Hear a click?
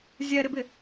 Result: no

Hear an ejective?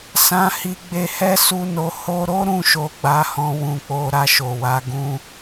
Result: no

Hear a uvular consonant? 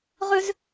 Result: yes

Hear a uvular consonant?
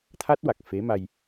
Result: no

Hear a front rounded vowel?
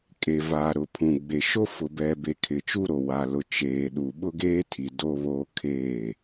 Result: no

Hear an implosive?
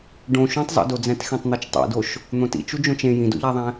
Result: no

